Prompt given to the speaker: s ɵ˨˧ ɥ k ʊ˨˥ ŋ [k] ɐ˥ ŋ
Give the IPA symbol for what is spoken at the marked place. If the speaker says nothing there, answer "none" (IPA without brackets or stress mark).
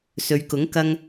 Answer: k